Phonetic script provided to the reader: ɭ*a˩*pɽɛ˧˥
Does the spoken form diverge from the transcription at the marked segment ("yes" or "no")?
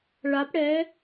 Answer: yes